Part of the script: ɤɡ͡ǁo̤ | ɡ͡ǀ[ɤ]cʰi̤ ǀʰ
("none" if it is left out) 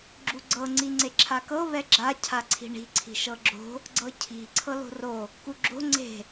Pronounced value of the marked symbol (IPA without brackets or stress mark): ɤ